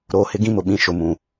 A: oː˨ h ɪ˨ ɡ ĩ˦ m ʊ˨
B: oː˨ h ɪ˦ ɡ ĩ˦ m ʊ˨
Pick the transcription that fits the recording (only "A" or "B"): B